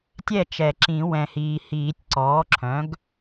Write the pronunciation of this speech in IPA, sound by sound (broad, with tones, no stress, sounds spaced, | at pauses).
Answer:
tʲ ɛ˥˩ t͡ʃ ɛ˨˩˦ ǁ ĩ˨˩˦ w ɛ̃˨ h iː˨ h iː˨˩˦ tʲ ǀ ɔː˩˥ ǁʰ œ̃˩˥ ɡ